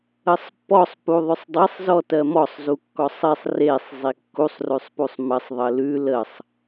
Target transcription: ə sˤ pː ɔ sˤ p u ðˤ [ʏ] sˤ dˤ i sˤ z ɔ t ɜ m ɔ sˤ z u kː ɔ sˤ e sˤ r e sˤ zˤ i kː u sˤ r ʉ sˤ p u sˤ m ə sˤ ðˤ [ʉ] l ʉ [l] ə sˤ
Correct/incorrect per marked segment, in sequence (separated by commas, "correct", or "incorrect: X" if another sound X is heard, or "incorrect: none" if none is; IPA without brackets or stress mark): correct, incorrect: ə, correct